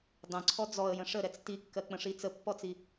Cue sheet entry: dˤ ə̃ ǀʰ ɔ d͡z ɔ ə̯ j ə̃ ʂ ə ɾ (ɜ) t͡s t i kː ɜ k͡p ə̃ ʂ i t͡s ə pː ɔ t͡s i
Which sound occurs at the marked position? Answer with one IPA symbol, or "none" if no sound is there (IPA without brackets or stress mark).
ɛ